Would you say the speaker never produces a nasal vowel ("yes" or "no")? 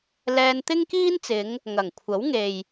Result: yes